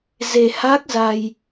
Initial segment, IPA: z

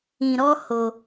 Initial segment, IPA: ĩ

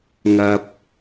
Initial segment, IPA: ŋ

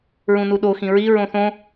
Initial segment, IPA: ɹ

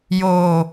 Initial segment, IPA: j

